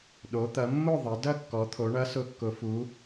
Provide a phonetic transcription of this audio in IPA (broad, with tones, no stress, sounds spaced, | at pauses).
ɗ o˩˧ t̪ ɐ˩˧ mː ʊ˥˨ ðˤ ɐ˩˧ d ɐ˥˨ kː ɔ˩˧ t̪ʰ o˩˧ ɳ ɐ˨˥ s ʊ˨˥ kː ʊ˩˧ f u˩˧